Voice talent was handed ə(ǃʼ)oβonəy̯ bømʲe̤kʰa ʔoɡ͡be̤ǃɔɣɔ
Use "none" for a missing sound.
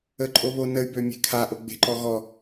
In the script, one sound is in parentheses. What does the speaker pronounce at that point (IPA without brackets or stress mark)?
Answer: ǃʼ